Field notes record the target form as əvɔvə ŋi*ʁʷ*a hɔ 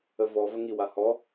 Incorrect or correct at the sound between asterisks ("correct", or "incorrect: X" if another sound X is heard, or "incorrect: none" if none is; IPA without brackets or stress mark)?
incorrect: w